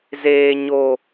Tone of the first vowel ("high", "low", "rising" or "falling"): low